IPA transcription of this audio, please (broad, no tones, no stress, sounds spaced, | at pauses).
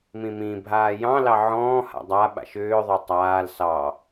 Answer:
m ĩ m ĩ bʱ aː j ɑ̃ l ɑ ʕ ɔ̃ː h a̰ dˤ a ɓ a̰ ʃ ʏː ðˤ ʏ tˤ aː l s ɑ